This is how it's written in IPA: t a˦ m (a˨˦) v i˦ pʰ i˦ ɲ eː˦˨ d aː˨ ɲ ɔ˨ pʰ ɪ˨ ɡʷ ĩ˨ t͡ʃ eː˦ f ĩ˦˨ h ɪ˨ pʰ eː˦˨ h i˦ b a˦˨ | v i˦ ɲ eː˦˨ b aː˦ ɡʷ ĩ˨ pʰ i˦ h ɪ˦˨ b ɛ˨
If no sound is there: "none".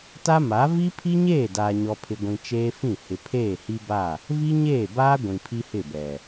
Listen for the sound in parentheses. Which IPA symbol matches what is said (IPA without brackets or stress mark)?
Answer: a˨˦